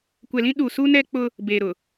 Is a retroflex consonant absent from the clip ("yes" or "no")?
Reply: yes